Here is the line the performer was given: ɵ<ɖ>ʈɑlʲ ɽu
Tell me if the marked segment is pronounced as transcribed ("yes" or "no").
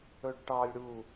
yes